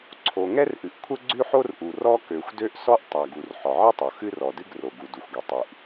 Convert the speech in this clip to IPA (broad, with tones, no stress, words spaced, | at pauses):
ǀʰo˩ ŋɛ˥rʔɨ˩ʔ kʷʰə˥ɡ͡ǀʉ˥ħo˥rʔu˩ rɔ˥kø˩xʷdø˥ʔ sɔ˥ʔtˤa˩ɡu˩r ħɔ˩ʕɨ˥tˤo˩ xɨ˥rɔ˩dɨ˥ɡ ro˩ɡu˩du˩xʷɡø˩ tˤʉ˩ʔ